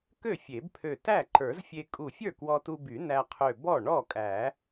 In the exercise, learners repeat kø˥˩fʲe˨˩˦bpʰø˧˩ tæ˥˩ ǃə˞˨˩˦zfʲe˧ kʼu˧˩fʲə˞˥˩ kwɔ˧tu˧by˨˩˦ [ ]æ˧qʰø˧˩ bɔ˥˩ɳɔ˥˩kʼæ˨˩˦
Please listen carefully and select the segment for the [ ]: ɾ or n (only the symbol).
n